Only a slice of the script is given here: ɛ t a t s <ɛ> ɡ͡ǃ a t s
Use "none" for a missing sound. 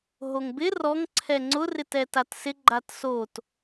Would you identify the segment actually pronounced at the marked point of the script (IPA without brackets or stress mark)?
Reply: ɪ